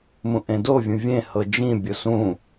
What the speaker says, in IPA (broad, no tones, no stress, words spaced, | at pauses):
mũʔẽdovʲũ vʲẽ hɤd͡ʒĩ bʲosũ